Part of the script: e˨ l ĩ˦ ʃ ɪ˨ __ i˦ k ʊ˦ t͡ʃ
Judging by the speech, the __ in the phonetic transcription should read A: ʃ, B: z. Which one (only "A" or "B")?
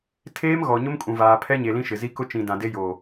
B